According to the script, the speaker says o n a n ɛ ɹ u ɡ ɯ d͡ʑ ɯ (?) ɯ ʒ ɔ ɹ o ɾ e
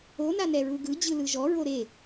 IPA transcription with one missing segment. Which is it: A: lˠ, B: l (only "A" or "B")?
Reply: B